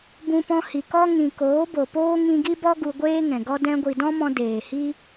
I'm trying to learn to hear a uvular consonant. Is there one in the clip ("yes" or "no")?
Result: no